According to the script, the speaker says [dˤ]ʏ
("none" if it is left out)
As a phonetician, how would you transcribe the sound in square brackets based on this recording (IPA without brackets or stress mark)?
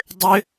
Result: dˤ